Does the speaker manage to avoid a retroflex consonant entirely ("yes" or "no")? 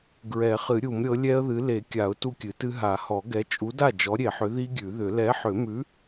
yes